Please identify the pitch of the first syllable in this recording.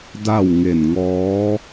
falling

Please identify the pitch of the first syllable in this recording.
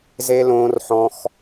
high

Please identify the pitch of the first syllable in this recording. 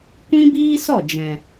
high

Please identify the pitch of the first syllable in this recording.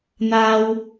high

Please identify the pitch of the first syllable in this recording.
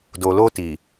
low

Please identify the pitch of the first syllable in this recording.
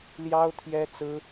high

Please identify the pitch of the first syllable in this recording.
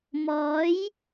rising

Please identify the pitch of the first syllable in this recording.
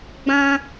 high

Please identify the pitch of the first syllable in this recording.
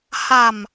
low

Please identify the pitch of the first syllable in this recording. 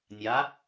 rising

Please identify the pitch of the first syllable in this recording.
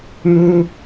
high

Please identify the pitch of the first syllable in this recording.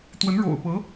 rising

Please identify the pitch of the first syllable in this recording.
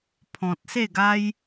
low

